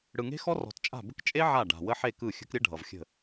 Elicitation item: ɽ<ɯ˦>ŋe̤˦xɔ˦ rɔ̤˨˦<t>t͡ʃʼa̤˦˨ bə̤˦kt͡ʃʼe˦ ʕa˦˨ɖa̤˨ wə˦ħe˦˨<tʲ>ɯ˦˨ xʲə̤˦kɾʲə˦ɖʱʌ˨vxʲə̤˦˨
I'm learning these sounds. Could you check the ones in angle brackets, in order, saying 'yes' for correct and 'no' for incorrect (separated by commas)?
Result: no, yes, no